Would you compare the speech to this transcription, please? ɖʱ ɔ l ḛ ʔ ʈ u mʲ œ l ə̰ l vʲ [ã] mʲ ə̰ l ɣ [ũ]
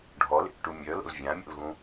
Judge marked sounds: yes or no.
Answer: yes, yes

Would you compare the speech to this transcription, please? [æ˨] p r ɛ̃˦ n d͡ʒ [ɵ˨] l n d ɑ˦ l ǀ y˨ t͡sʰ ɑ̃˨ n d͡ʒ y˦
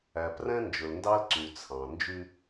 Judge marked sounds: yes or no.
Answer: yes, yes

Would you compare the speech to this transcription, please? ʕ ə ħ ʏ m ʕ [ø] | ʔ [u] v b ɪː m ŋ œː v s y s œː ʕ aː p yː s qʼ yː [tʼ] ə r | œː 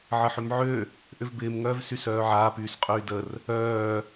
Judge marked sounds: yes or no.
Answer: yes, no, no

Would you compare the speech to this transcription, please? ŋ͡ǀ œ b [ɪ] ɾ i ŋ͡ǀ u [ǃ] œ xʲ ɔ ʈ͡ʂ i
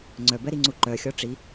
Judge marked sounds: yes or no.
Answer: no, yes

